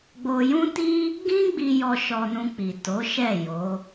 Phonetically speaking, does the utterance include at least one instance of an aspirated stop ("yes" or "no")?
no